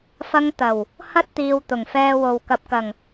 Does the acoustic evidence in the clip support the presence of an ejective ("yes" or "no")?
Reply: no